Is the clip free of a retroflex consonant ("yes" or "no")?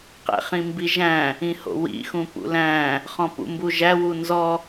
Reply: yes